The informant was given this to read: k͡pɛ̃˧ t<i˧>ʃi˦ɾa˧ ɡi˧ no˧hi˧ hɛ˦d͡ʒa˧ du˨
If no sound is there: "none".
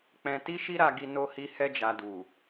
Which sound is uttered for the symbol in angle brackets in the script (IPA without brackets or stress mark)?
i˦